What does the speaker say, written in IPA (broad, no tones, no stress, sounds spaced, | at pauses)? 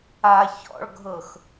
a ç ɔ̰ ɭ ɡʱ ɤ x